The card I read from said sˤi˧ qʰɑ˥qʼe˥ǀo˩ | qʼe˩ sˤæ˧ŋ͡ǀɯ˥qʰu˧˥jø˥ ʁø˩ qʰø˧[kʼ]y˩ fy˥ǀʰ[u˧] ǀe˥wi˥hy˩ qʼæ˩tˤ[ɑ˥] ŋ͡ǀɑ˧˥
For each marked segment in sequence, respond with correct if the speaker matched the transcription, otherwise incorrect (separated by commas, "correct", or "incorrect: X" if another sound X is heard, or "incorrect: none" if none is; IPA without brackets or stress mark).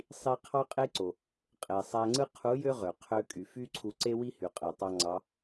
correct, correct, incorrect: ɑ˧